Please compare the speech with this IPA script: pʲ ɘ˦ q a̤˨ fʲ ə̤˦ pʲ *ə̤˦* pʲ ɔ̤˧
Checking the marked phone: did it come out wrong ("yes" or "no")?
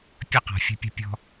no